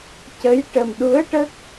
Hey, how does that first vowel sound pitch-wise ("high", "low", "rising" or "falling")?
rising